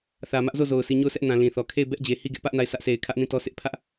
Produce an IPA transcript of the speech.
θ ä˨ m ä˦ ʔ z o˦˨ z o˨ ʊ̯ s i˨ ɲ o˦˨ ʊ̯ sʰ ɛ˦ ʔ n ã˨ l ĩ˨ θ ɔ˨ kʰ e˦˨ ɪ̯ b ɛ˦ ʔ d͡ʑ e˨ h i˦˨ ɡ ɪ˦ ʔ p ä˦ ʔ n a˦˨ ɪ̯ sʰ ä˦ ʔ sʰ e˨ ɪ̯ kʰ ä˦ ʔ n ĩ˦˨ t ɔ˦ sʰ ɪ˦ ʔ pʰ ä˦ ʔ

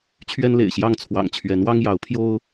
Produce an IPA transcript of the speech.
t͡ɕʰ ɥ ɛ˦ n l ḛ˨˩ ɪ̯ ɕ j ɑ˥˨ ŋ t͡sʰ w ɑ̰˨˩ ŋ t͡ɕʰ ɥ ɛ˨˦ n w ɑ˦ ŋ j ɑ˨˦ ʊ̯ pʰ j o˦ ʊ̯

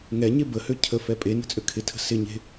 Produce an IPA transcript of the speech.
ŋ ɛ ɲ e b ə h ø cʰ ə f ɛ pʼ e n ə̤ t͡sʼ ø kʰ ɪ tʰ ə̤ s ɪ ɲ e̤

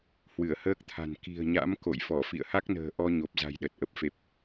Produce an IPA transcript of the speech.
h w ɨ˧˩ ə̯ h əː˦˥ k̚ t̪ʰ a̤˨˩ n k i̤˨˩ ə̯ ɲ a̰˧˥ m k o̰˧˨ j f ɔ˧˩ f ḭ˧˨ ə̯ h a˦˥ k̚ n ə̤ː˨˩ ʔ ɔ˧ ɲ o˨˩ p̚ z a̤˨˩ j ɗ ə˨˩ t̚ ʔ ə˨˩ p̚ f e˨˩ p̚

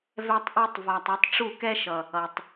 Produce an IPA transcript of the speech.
v ɛ˦ tˤ ʔ ɯ˦ tˤ v a˧ tˤ ɛ˧ tˤ ʈ͡ʂ u˦˨ k ɛ˦ ʃ ʌ˨ | ʌ˨ tˤ

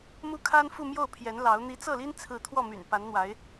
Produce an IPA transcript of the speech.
m u˥ kʰ a˥ n f u˥˧ m j o˥˩ ʊ̯ pʰ j ɛ˧˥ n l ɑ˧˥ ʊ̯ n̪ i˧˥ t͡s ɤ˥˩ l i˥ n t͡sʰ ɹ̩˥˧ t̪ʰ w ɔ˥˩ m y̰˨˩ n p a˧˥ n n̪ w a˧˥ ɪ̯

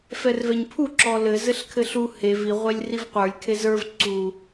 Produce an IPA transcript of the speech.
f ɛ r v ɛ ɲ pʰ u ǁ ɔ l ɘ z ɘ ɬ kʰ ɘ ɬ u h e v i ʁʷ e lʲ r i v qʷ ə˞ lʲ kʰ e z ə˞ v ǀ u

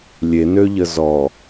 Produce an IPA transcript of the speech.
lʲ e n ø ʎ ə z ɔ

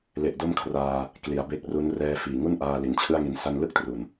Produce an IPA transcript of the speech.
l e˨˩ ʔ d o˥˩ m kʰ r aː˧ | k l i˩˦ a̯ b e˦˥ k̚ r u˦˥ n r ɛː˧ f iː˨˩ ŋ u˥˩ n ʔ aː˧ l i˨˩ n t͡ɕʰ ɯ˥˩ a̯ ŋ i˧ n s a˥˩ n l ɯ˥˩ k̚ t r u˨˩ n

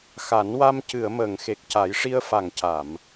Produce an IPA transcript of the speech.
x a˨˩˦ n w a˧ m c ɨ˨˩˨ ə̯ m əː˨˩˨ ŋ x e˨˩ k̚ c a˨˩˦ j ʂ i˧ ə̯ f a˨˩ ŋ c a˨˩˨ m

